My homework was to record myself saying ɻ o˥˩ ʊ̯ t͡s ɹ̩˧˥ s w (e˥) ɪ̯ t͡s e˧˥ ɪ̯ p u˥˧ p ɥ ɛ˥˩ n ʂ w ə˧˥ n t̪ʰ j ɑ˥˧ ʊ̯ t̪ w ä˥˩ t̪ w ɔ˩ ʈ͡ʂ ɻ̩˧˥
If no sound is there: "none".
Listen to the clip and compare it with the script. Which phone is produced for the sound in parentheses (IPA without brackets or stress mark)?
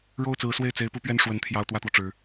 e˥˩